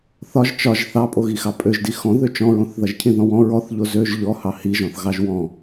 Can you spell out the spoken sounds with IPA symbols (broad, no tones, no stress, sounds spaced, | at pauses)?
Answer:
θ ɒ ʒ t͡ʃ ɒ ʒ θ ɑ pʼ o ɣ i x ɑ pʼ ø ʒ d i x ɔ̃ ð ø t͡ʃ ɔ̃ ɹ õ θ ð ʌ ʒ cʰ ĩ ð ɔ̃ w ɔ̃ ɹ ɔ θ ʎ o z ø ʒ ʎ ɔ h ɑ h i ʒ ɔ̃ θ ɣ ɑ ʒ w ɔ̃